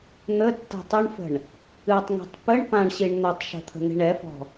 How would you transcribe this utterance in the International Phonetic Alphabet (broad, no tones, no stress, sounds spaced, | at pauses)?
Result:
n̪ ə tː ɛ̤ tˤ ə ɳ f ə̤ ɳ | ɨ tˤ ŋ i̤ tˤ p ə ɳ p ã ɳ ɕ i ɳ n̪ ə tˤ ʃ ə̤ t̪ʰ ə̤ n̪ i̤ ɳ ɛ f ɔ̤